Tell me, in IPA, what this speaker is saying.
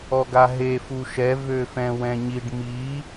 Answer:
ɔɡaɦe fuʃɛ vøfɛ̃wɛ̃ɲiɖ mi

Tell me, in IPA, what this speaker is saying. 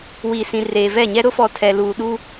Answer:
wiː˨sĩ˨reː˨ vɛ˦˨ɲɛ˦ ɾʊ˦fɔ˨ tʰɛ˨ luː˨ɗu˦

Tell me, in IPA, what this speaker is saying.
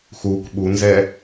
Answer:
xuk ɓunzɛ

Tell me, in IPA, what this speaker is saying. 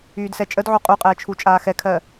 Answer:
yːdsɛt͡ʃʼədʕu qʼuqʼɛː t͡ʃʰut͡ʃʼaːxɛkʰɜ

